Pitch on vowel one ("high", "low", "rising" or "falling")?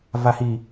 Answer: low